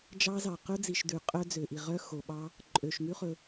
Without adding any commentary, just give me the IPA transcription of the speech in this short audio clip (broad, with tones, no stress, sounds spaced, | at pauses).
d͡ʒ ɑ˦˥ z ɑ˨ q ɵ˦˥ d͡z i˨ ʃ d ʉ˨ qʼ œ˦˥ d͡z ø˨ ʔ i˨ ʁ œ˦˥ x o˨ ɓ ɑ˦˥ | ǃʼ ø˨ ʃ ŋ ʉ˦˥ χ ɵ˨